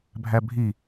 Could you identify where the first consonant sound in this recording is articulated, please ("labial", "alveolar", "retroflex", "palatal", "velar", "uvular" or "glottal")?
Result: labial